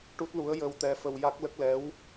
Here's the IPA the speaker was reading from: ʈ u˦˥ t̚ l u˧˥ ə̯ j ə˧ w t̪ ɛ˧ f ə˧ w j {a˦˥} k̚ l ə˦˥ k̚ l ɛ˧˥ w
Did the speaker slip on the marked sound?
no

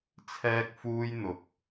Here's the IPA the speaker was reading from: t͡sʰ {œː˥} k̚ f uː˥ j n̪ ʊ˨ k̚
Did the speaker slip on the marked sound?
yes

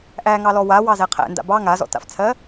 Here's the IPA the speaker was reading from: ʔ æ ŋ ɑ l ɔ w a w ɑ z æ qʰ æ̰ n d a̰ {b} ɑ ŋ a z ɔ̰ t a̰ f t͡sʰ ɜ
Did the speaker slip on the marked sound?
no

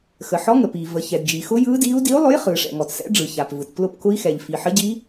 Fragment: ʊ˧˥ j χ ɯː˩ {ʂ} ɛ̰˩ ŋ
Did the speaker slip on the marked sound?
no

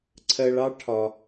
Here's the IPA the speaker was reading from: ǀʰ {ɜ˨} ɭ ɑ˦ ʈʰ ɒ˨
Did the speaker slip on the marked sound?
no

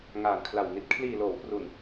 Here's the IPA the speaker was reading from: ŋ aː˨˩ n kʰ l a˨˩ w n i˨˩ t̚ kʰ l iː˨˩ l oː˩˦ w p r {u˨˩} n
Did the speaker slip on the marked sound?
no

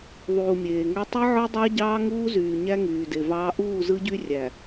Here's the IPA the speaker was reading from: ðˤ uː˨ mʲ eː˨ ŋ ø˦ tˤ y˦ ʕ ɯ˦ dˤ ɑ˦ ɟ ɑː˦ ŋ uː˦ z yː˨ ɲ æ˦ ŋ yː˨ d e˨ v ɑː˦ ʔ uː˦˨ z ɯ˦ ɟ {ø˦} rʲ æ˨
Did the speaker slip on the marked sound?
yes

